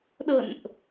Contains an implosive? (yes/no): yes